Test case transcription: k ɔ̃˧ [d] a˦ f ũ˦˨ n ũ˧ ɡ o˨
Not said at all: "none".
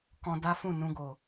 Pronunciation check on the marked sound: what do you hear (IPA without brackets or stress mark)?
d